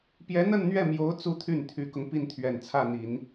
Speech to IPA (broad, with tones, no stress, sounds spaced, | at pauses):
p j ɛ˧˥ n̪ ə˥˧ n n̪ ɥ ɛ˥˩ m j o˧˥ ʊ̯ t͡s u˥ t̪ʰ y˥˩ n t̪ʰ y˧˥ k ʊ˧ ŋ p i˥˩ n t̪ʰ ɥ ɛ˨˩ n t͡sʰ ä˥˩ n̪ i˨˩˦ n